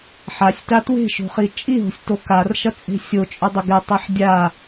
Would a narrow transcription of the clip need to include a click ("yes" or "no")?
no